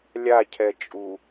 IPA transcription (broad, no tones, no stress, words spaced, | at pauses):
lʲacʰɛ t͡ʃʼu